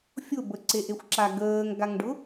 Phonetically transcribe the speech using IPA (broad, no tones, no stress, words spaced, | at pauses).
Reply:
fʲʊ bəǀeʔexʷǁa ɡəːŋɡaŋɖʊ